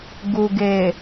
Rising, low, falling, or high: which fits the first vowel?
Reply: low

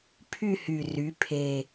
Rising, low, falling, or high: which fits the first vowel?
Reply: falling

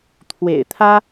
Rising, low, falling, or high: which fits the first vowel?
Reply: low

